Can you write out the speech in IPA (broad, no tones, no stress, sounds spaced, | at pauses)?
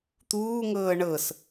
t̪ uː ŋ ɤː ɳ ɤ s